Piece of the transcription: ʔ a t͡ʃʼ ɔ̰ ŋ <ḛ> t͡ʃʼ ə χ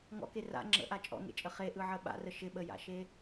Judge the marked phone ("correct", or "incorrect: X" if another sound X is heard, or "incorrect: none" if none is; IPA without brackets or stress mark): correct